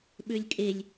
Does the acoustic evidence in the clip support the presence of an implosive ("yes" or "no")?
yes